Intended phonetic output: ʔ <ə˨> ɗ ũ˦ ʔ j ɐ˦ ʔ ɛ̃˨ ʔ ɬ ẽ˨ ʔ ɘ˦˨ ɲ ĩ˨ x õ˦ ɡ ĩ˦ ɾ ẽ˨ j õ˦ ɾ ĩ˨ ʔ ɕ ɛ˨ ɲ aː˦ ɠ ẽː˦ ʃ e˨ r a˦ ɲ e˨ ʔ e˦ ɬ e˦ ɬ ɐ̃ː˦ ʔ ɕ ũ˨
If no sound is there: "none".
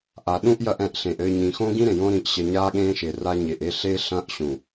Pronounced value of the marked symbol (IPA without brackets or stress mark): a˨